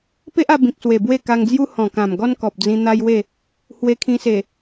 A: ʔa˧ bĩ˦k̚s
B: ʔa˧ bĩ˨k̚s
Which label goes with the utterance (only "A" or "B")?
B